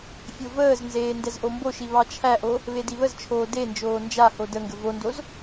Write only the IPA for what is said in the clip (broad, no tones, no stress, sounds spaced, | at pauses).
fʲ o v əː z n z eː n d ɛ z ʔ o m b o ʃ i β ɑ t͡ʃʰ æ ʔ o | β e d i β ə z t͡ʃʰ oː d e n d͡ʒ oː n d͡ʒ a h o d ə ŋ ɡ ə v o n d o z